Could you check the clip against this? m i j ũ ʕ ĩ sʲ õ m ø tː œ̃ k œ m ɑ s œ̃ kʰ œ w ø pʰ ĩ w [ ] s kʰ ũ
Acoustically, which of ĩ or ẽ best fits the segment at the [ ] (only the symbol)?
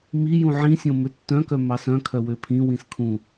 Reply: ĩ